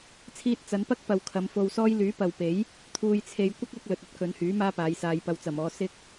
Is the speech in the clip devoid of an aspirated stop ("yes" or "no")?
no